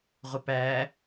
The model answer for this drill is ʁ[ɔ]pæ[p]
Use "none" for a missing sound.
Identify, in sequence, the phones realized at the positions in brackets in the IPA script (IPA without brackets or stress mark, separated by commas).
ʊ, none